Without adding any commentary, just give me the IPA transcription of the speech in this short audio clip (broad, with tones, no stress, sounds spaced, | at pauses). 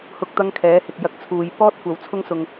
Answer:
h ʊ˧ k̚ t̪ ɐ˥ ŋ kʰ ɛː˨˥ h ɪ˨ k̚ j ɐ˧ k̚ t͡sʰ uː˨ j p ɔː˥ t̚ kʷ ɐ˨ w t͡sʰ ʊ˥ ŋ s ʊ˨ ŋ